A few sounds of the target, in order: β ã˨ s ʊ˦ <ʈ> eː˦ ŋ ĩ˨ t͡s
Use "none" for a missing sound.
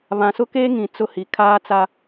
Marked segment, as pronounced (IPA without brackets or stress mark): k